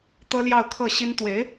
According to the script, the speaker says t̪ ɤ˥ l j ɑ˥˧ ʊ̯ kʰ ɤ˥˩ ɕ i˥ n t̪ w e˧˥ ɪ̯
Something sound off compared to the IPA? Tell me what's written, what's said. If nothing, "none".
none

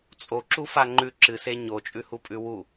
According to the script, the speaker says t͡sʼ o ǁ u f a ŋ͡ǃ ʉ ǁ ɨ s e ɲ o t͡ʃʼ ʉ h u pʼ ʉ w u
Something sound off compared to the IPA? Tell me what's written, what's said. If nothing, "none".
none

